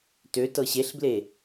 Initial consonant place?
alveolar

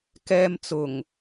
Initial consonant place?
velar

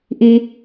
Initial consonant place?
glottal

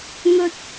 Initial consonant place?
velar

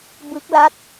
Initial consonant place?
labial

